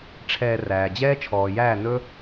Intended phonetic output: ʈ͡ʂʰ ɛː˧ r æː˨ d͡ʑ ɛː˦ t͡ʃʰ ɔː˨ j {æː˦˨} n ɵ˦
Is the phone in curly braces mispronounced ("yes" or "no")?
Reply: no